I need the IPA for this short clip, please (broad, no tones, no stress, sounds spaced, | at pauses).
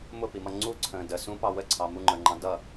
m ʊ p i m ʌ ŋ͡ǀ u ǀʰ ə̃ː d ə s ũ p ɑ w ə ǀʰ ɑ m u ŋ͡ǃ ə˞ ŋ͡ǃ ɑ̃ d ʌ